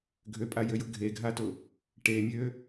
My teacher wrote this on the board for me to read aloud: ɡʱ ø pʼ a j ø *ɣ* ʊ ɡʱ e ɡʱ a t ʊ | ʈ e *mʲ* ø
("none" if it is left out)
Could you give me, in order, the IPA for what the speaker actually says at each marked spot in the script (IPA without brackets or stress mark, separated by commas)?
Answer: j, mʲ